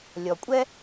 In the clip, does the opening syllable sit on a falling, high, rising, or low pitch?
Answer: low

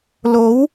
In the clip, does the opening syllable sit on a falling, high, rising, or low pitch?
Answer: rising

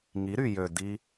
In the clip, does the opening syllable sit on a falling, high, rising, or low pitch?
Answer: rising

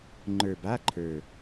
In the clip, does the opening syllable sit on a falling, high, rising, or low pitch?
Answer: low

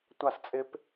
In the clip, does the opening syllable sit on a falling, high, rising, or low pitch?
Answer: falling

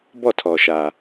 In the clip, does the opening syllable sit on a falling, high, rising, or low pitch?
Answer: falling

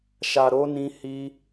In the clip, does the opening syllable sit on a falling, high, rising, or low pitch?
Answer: low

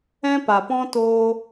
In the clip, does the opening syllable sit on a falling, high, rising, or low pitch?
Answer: high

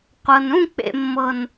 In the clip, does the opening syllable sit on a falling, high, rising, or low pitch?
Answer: low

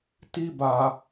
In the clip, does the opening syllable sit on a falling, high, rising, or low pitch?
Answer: high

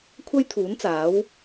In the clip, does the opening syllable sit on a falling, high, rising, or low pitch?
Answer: high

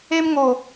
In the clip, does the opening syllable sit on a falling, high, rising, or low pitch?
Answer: high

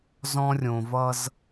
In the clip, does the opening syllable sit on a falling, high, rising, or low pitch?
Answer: high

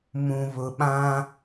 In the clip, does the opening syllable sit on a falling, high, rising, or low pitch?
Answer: low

